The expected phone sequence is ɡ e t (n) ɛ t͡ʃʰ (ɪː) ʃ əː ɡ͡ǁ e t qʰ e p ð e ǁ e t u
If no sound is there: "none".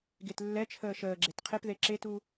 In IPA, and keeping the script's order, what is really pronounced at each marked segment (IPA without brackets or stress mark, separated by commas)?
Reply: lː, əː